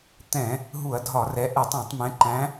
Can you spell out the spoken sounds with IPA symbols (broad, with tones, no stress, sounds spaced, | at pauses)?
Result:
t̪ ɛ̃˧˩˧ | ɦ u˧˩˧ ɐ̯ dʱ ɒ˧˩˧ r ɛ˨˦ ʔ ɛ˧˩˧ tˤ æ̃˧˩˧ tˤ m ɛ̃˨˦ ǃ æ̃˨˦